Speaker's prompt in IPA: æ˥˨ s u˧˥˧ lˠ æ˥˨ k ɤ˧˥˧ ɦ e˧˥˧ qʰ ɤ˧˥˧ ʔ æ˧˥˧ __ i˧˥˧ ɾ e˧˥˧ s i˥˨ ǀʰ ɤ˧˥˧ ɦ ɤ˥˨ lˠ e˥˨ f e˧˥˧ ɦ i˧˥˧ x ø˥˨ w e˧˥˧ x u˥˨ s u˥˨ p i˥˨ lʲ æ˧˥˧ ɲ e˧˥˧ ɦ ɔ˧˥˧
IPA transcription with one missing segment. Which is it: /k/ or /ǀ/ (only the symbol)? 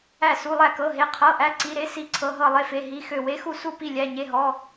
ǀ